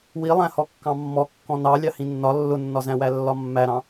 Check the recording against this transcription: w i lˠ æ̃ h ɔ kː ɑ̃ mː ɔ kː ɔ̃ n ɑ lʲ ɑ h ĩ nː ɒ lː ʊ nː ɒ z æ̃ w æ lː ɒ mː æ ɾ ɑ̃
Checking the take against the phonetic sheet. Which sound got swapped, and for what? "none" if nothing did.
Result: none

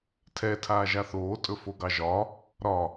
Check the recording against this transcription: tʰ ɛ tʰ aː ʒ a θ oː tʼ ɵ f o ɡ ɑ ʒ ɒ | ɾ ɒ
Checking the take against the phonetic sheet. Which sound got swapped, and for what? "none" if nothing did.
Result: none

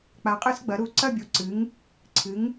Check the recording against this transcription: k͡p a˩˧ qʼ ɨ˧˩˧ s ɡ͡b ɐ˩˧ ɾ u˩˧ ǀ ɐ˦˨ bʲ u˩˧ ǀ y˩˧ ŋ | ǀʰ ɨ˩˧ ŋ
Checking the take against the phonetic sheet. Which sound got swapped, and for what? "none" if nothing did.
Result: y˩˧ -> ɨ˩˧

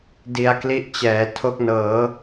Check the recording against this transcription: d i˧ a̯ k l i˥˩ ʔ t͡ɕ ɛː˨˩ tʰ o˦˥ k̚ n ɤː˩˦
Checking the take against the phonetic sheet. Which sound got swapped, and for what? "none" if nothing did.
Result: none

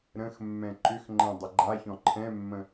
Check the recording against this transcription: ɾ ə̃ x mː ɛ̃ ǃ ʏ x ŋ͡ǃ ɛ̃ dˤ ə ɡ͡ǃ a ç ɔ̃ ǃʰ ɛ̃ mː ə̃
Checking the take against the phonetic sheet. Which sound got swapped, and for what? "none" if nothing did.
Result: none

